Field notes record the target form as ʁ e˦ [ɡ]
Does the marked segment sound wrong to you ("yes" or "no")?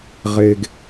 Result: no